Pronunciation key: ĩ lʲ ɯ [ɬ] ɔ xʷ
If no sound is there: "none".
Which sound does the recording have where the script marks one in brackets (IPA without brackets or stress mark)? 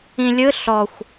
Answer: ɬ